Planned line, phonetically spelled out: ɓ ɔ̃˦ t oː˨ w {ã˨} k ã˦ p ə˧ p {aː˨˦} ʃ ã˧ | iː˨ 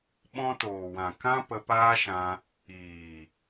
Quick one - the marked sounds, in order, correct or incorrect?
correct, incorrect: aː˦

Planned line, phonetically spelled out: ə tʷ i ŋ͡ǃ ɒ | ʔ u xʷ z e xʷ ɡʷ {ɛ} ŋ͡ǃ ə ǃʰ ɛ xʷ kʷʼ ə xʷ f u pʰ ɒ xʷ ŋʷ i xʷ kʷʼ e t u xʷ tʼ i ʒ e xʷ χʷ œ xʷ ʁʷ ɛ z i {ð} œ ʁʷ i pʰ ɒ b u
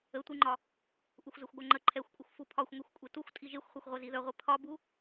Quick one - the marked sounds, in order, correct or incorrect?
incorrect: œ, correct

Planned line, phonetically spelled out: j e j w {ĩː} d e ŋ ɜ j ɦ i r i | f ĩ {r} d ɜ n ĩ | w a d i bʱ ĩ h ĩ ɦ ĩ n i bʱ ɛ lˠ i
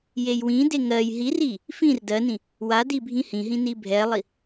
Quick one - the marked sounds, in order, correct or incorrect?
incorrect: ĩ, correct

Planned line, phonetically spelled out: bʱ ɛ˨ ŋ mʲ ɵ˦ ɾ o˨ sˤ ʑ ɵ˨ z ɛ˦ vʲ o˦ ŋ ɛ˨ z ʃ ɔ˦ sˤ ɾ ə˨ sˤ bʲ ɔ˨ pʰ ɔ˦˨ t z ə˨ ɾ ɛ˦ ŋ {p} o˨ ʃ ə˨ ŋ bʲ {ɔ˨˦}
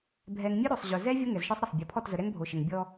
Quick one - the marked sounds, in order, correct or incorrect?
incorrect: bʱ, incorrect: ɔ˦

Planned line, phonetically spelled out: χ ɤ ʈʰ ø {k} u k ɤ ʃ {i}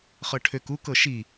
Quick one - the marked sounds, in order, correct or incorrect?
correct, correct

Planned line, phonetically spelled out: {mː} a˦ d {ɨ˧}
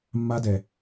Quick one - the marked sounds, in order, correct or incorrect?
correct, incorrect: ɛ˧

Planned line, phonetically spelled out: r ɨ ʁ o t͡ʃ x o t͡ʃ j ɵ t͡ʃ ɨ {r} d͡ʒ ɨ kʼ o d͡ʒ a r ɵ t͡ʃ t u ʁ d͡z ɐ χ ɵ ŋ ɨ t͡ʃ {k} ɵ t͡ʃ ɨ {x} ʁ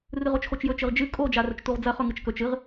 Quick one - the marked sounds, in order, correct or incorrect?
incorrect: ʁ, correct, incorrect: none

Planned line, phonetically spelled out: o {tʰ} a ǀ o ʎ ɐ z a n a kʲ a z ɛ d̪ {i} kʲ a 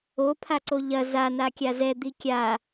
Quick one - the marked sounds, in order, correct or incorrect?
incorrect: pʰ, correct

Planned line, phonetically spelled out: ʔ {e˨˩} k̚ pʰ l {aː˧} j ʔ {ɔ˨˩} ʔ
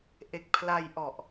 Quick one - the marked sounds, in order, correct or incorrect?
correct, incorrect: a˧, correct

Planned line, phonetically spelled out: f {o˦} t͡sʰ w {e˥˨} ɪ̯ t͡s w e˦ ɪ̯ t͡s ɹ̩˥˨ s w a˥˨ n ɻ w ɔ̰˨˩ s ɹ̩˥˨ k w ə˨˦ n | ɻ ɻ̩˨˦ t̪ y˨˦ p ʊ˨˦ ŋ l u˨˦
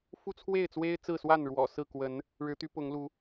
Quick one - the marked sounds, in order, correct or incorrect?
incorrect: u˦, correct

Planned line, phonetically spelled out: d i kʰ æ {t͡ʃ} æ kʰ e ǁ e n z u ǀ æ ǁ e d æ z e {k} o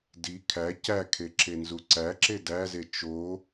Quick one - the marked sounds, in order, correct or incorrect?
incorrect: c, incorrect: t͡ʃ

